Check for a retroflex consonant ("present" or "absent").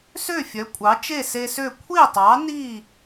absent